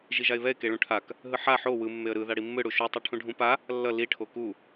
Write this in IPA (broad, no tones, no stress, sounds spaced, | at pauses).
ʒ i ʒ a ɪ̯ β ɛ ɪ̯ k e ɭ ũ ʈʰ a k | ɦ ɯ ħ a ħ o w ɯ mː e ə̯ ɾ ɯ ð a ɽ i mː ɯ ɽ u ʃ u tˤ o ʈʰ ũ ɖʱ ũ p a | lː ʌ l i ʈʰ o k u